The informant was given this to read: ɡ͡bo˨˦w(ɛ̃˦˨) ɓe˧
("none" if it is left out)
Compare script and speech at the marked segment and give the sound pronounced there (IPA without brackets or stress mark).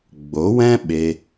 ɛ̃˦